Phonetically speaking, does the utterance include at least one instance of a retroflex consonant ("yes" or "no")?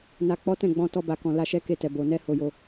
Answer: no